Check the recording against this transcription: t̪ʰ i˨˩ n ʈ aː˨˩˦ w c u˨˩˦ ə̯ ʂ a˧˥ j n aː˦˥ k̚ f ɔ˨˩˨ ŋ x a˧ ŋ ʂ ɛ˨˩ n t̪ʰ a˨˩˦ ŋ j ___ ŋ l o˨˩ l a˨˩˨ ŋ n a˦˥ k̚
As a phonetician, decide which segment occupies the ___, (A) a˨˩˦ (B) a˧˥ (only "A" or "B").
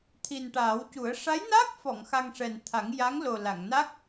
B